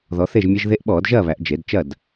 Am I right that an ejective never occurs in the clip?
yes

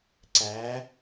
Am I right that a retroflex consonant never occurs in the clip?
yes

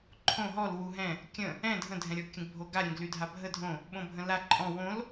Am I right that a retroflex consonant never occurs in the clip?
yes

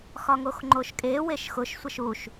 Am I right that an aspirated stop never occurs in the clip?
yes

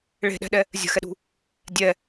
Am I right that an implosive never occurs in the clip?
no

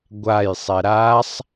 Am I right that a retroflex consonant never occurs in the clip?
yes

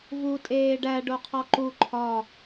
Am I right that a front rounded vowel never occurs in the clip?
yes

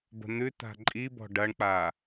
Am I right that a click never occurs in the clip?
no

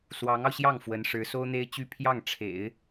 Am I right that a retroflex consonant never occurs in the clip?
no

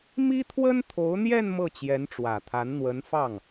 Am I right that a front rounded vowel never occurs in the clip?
yes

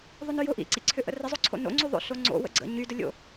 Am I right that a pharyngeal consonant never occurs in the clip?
yes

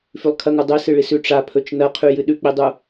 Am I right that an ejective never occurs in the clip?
yes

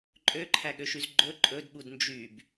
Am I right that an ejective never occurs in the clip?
no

